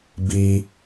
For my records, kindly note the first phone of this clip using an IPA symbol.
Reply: b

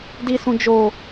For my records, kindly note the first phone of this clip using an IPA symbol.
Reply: d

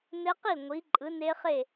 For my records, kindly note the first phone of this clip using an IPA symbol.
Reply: n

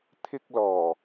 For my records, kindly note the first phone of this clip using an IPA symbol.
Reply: t̪ʰ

